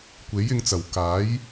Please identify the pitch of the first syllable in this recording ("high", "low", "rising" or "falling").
rising